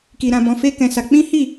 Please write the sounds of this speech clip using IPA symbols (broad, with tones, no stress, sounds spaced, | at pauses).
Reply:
k i˨ ɾ ã˨ b ɔ̃˨ f e˧ k ɛ̃˨ s a˧ k͡p ĩ˦ h i˦˨